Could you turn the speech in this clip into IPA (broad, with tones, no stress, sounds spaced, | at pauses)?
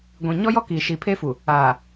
ɡʷ ĩ˨ ɲ ɔ˦ j ɔ˦ k i˨ ʃ i˨ pʰ e˦ f u˨ | aː˨